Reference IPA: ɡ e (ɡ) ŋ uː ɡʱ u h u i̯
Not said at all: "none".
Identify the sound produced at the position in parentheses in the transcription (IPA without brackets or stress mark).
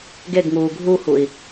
ɡ